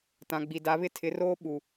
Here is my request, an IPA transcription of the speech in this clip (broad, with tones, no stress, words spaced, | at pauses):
tã˨ɡ͡bi˨da˨˦βɪ˦ tʰɪ˨˦roː˦ ɓu˨